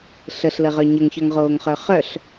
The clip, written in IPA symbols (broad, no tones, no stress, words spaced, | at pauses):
ɬəɬləʁœ ɲəŋçœŋʁoːŋχœ χœɬ